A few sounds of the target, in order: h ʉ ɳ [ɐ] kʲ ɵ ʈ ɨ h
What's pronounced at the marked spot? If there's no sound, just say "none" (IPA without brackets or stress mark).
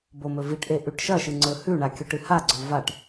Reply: a